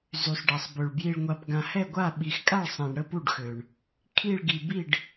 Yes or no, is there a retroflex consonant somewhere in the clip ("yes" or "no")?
yes